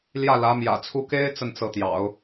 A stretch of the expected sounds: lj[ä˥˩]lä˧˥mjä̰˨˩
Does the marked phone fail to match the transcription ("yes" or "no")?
no